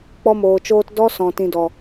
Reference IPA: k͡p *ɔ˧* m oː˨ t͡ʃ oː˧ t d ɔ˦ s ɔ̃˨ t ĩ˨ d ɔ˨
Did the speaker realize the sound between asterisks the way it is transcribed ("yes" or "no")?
yes